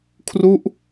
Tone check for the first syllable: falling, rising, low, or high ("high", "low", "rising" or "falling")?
falling